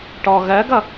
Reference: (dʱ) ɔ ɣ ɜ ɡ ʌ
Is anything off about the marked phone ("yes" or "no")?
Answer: yes